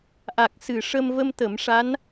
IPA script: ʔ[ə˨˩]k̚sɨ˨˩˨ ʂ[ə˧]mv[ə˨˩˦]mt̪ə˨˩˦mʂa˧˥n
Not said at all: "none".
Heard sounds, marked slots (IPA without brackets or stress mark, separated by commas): a˨˩, ə˧, ə˧